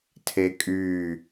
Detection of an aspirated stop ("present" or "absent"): present